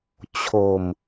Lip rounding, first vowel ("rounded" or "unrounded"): rounded